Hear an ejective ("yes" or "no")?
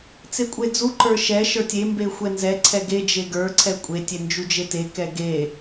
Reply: yes